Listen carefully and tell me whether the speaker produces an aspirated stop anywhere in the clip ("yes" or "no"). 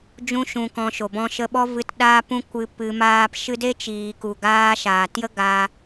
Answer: no